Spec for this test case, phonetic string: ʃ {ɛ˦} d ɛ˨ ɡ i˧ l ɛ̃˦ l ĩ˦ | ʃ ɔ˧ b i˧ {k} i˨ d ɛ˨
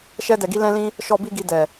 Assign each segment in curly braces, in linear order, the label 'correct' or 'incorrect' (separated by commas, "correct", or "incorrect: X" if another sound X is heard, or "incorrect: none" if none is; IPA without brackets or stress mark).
incorrect: ɛ˧, incorrect: ɡ